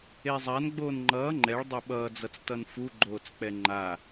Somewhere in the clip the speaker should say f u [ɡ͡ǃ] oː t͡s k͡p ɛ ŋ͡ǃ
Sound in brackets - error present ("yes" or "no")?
no